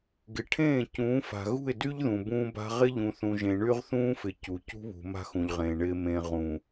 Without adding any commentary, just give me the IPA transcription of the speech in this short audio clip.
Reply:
ɡ ɪ˨ ʈʰ ẽː˦˨ c ũː˨˦ f a̤˨ ɣ ṳ˦˨ ɪ̯ d y˦ ʎ ð ũ˨ b ũː˦ b a̤˦ ʁ ɪ˦ ʎ ũ˨ θ ũ˨ ʒ ẽ˨ ɳ y˦ ʁ θ ũː˦ f ɪ˨ c u˨ c ṳ˦ β ṳ˨ m a̤˦ x ũ˨ ʎ ʁ ẽː˨ ɳ ɪː˨ m ẽ˨ ʁ ũ˨

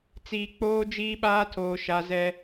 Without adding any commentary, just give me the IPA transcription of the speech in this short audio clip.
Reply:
t͡s iː˨ k͡p oː˦ d͡ʒ iː˦ ɓ aː˦ tʰ oː˨ ʃ a˨˦ z ɛ˦

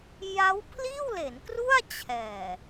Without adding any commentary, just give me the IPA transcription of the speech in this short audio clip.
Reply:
j a˦˥ w pʰ l iː˥˩ w l e˩˦ n k r u˥˩ a̯ t͡ɕʰ ɛː˨˩

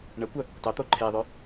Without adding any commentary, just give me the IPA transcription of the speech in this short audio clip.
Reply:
ɳ ə kʷ œ | tˤ œ t̪ o ǃʰ e ðˤ œ

